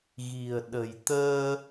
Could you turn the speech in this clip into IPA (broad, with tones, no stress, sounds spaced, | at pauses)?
ɣ i̤˨˩ ə̯ ɗ ə̤˨˩ j t̪ əː˧